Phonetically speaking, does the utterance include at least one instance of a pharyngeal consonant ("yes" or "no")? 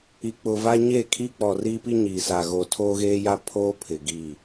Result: no